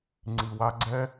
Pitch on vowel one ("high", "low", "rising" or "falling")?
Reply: low